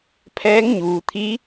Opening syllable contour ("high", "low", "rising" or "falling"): rising